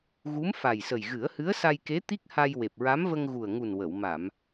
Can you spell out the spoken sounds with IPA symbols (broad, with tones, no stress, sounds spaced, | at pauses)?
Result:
ɣ u˧˥ m f a˨˩ j s ə˨˩ j ɣ ɨ˨˩˦ ə̯ h ɨ˧˥ ə̯ s a˧ j k e˧˥ t̪ i˦˥ k̚ h a˧ j w e˨˩ p̚ ɹ a˧˥ m v ə˧ ŋ ɣ u˨˩ ə̯ ŋ u˨˩ n w ə˨˩˨ w m a˨˩˨ m